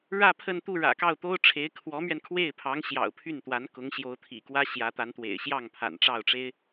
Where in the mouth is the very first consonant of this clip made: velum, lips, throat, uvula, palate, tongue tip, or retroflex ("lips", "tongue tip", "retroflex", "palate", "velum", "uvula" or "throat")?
retroflex